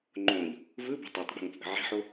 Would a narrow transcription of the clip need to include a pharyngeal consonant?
yes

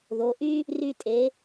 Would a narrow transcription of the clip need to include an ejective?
yes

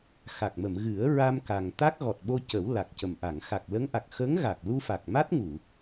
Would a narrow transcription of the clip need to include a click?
no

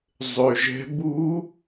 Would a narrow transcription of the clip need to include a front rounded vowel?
yes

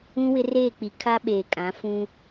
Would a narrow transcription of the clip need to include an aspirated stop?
yes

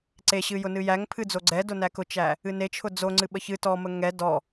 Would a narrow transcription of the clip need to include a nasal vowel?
no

